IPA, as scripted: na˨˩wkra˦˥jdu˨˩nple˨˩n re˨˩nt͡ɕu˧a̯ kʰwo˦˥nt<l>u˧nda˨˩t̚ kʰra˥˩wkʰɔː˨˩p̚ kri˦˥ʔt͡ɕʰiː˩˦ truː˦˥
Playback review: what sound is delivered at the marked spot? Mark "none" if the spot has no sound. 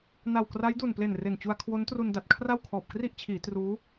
r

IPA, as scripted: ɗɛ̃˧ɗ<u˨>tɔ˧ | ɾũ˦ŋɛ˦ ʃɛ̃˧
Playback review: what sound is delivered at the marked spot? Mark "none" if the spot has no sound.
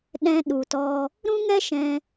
u˨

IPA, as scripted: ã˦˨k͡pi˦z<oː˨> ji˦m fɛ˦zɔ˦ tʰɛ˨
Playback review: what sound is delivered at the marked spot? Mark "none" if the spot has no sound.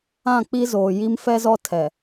oː˨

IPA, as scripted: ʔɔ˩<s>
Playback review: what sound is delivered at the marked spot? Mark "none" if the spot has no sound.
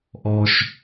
ʃ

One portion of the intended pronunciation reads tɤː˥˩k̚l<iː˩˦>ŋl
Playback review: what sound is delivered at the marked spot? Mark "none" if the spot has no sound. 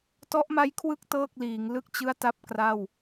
iː˩˦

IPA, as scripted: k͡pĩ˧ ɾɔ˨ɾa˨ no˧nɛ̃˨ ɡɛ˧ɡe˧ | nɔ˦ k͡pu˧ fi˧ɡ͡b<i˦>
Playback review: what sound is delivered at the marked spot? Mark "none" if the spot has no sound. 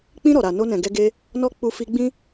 ĩ˦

